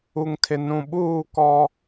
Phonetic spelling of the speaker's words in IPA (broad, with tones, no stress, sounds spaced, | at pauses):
u˨ ŋ tʰ ɪ˨ n ũ˨ ɓ uː˦˨ k ɔ˦